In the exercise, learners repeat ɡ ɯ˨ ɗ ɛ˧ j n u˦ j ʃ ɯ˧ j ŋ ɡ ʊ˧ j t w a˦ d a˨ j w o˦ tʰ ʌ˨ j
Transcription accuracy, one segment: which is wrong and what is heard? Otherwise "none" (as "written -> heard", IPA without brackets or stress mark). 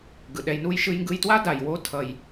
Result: ʊ˧ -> ɯ˧